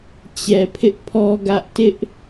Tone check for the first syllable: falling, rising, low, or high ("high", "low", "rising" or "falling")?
low